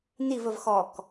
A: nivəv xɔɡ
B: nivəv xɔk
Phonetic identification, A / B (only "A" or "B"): B